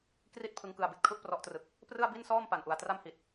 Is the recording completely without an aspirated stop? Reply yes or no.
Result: no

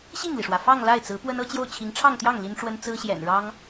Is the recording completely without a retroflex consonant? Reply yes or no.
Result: no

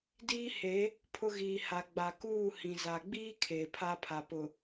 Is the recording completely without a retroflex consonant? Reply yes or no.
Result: yes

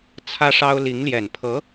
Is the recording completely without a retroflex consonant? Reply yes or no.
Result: no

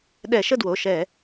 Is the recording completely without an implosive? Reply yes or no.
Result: no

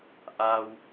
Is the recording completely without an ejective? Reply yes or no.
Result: yes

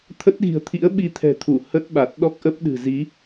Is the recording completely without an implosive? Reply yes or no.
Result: no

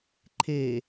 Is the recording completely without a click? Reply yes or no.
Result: no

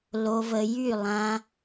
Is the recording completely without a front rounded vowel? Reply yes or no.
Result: no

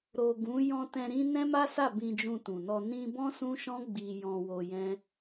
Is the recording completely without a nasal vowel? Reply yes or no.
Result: no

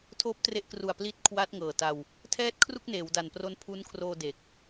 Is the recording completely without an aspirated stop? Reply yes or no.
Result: no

